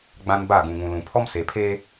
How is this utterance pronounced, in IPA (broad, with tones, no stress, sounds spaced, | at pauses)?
ɡ͡b ã˦ n b a˦˨ ɡ ũ˨ ŋ ũ˨ l ũ˨ pʰ ɔ˦ m s e˨ pʰ eː˦